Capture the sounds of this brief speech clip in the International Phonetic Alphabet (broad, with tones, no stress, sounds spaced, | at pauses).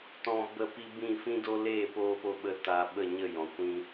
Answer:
t ɔ̃˧ b ə˦˨ p i˧ b ĩ˦˨ f ĩ˦ d o˦ l eː˦˨ p oː˧ p o˧ ɓ ə˧ t a˨ ɓ ə˦˨ ɲ ə˦˨ j ɔ̃˨ kʷ ĩ˧